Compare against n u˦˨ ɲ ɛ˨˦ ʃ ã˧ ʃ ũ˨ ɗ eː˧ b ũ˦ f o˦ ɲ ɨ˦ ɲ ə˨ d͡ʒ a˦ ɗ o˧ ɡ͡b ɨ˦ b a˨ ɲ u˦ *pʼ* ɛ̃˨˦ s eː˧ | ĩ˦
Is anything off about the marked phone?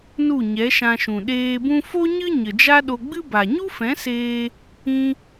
yes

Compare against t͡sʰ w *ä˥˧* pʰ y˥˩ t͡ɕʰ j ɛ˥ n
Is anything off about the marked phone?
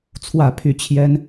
no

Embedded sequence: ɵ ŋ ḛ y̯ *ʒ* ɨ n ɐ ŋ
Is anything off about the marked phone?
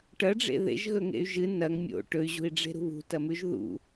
no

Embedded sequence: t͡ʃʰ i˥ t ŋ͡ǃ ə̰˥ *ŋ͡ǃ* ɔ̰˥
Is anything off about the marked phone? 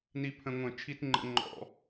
no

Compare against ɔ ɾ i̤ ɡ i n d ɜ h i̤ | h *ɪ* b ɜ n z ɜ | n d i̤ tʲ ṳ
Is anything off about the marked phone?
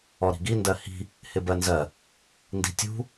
no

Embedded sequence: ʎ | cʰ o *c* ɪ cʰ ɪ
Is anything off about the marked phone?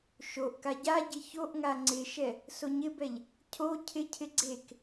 yes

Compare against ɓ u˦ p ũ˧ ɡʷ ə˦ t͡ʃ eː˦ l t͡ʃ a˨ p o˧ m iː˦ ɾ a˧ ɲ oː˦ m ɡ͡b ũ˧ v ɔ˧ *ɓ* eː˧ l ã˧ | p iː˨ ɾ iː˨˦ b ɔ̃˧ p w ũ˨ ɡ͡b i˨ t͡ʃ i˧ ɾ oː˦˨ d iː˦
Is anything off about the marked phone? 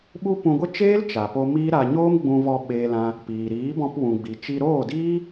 no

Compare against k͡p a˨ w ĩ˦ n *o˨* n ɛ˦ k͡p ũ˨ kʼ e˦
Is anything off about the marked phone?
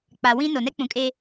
no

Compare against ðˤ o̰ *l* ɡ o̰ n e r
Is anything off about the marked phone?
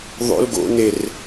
no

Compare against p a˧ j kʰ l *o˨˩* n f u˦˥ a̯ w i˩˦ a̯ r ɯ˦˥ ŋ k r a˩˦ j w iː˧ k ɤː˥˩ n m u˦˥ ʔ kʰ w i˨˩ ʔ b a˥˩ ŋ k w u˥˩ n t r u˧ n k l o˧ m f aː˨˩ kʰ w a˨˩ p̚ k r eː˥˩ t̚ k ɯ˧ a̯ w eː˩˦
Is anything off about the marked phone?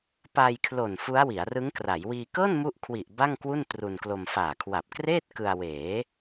no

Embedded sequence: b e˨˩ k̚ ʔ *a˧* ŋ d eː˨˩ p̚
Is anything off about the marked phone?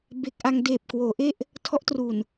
no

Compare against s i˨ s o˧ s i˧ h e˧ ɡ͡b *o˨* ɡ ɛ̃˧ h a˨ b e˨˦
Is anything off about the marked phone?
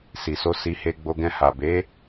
yes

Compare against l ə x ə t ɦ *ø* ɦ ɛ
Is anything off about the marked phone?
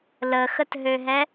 no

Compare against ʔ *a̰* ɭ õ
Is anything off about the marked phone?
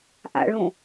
no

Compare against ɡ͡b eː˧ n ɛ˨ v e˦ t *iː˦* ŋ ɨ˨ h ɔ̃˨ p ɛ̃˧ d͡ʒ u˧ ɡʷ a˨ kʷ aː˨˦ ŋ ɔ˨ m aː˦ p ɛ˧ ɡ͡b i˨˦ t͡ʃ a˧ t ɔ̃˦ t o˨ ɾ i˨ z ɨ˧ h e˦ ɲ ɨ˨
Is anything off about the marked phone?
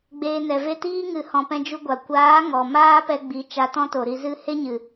no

